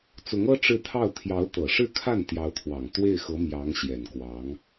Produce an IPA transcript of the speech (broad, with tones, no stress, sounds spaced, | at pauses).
t͡s ʊ˧˥ ŋ ɤ˥ ʈ͡ʂ ɻ̩˥˧ t̪ʰ ɑ˥˩ ʊ̯ t̪ʰ j ɑ˧˥ ʊ̯ t̪ ɤ˨˩ ʂ ɻ̩˥˧ kʰ a˥˩ n t̪ j ɑ˧˥ ʊ̯ t̪ʰ w ɑ˨˩ ŋ t̪ w e˥˩ ɪ̯ x ɤ˧˥ m j ɑ˧˥ ŋ ɕ j ɛ˨˩ n k w ɑ˧˥ ŋ